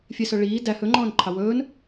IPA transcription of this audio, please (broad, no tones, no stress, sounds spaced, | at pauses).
fʲ e s œ ɭ iː d æ h ɵ ŋ͡ǃ ɔ̃ː n ǃʰ ɑ w ɵː n